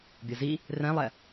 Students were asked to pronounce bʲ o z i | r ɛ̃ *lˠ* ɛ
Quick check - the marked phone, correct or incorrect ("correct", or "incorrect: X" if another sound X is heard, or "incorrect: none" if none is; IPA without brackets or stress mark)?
correct